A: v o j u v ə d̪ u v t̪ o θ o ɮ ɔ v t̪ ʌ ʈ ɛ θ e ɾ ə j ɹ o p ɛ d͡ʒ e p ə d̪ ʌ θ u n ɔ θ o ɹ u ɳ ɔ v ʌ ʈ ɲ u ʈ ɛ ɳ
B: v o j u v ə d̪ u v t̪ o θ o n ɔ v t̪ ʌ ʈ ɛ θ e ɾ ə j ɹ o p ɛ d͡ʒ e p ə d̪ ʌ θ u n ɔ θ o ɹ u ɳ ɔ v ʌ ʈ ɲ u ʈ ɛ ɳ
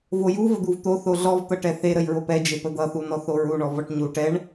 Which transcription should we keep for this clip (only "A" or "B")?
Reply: A